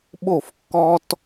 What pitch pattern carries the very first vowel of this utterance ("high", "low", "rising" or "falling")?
falling